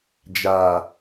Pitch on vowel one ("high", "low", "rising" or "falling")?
low